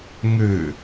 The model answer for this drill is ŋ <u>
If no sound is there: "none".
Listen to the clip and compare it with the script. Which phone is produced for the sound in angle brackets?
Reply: ʉ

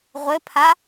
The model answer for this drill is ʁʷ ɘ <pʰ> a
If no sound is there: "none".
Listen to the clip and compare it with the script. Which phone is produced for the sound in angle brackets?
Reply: pʰ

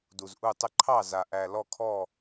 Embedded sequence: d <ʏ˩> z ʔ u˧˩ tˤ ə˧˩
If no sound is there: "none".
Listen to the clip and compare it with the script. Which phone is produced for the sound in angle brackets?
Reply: u˩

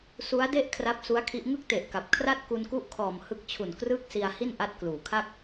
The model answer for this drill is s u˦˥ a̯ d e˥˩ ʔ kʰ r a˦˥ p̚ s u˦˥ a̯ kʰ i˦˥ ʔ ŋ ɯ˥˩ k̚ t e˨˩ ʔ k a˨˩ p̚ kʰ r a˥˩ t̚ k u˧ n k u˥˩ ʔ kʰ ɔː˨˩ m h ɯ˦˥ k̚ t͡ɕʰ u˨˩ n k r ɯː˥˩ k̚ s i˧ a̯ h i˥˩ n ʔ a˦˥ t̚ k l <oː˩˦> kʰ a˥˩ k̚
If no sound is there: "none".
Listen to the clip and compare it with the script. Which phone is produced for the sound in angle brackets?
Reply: uː˩˦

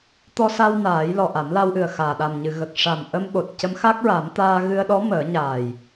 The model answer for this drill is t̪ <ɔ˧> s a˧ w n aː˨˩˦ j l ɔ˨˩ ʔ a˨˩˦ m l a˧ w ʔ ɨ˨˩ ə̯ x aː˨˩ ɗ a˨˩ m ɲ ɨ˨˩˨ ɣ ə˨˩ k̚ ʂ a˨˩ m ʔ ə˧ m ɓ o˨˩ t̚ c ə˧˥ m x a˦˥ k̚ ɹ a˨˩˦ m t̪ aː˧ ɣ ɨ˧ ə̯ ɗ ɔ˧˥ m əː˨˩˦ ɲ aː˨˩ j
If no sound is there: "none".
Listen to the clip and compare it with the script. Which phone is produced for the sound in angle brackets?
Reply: ɔ˧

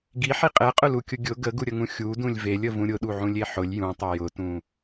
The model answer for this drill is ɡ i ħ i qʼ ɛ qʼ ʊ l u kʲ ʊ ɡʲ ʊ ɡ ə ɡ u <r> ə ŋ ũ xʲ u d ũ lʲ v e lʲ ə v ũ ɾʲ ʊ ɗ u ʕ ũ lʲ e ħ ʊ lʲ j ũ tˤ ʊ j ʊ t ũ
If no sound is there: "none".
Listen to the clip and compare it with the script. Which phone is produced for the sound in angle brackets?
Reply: ɾʲ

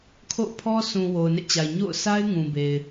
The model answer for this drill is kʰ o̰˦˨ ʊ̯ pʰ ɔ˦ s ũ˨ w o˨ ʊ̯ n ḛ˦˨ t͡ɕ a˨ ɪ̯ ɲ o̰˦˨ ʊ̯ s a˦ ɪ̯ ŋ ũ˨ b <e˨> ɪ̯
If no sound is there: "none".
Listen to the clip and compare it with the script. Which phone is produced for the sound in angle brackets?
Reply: e˨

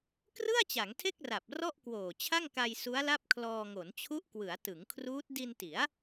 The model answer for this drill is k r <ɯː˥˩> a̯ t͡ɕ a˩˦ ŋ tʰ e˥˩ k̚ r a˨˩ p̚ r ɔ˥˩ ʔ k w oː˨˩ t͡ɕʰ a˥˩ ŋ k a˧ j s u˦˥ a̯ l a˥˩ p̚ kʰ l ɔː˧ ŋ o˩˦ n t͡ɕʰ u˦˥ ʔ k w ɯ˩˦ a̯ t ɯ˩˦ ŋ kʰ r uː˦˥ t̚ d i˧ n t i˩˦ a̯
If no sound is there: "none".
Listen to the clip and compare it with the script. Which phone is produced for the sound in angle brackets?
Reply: ɯ˥˩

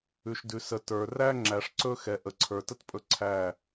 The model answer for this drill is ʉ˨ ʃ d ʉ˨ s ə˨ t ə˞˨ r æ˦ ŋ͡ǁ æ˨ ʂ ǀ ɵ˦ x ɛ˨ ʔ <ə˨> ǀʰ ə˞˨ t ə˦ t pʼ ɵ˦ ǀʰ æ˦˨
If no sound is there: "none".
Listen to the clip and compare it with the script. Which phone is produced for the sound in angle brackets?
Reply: ə˨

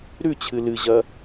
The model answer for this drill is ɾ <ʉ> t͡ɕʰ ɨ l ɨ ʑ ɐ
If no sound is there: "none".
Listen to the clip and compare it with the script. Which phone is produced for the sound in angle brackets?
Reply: ʉ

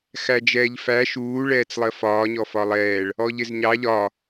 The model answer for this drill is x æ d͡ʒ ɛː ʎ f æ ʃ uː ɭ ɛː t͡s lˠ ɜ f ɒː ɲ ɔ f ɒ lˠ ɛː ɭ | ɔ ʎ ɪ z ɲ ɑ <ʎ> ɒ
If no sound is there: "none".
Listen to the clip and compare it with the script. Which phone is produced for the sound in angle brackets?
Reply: ʎ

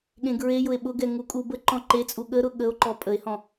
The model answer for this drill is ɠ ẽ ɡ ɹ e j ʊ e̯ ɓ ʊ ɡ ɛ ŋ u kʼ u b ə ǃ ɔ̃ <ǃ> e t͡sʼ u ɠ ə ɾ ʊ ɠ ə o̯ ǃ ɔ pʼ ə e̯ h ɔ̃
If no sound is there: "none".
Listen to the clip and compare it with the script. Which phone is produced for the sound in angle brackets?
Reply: ǃ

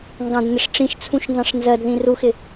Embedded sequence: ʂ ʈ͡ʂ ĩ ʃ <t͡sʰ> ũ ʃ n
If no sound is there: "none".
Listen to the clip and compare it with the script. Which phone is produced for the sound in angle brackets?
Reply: t͡sʰ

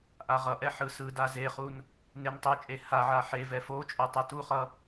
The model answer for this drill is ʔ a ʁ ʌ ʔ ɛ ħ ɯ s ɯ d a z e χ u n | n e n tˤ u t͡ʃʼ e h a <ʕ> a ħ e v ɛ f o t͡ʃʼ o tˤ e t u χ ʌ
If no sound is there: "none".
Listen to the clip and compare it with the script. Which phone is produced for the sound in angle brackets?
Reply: ʕ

